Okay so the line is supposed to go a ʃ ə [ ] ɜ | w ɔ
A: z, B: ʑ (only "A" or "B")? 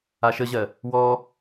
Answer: B